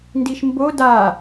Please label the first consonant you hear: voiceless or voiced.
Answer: voiced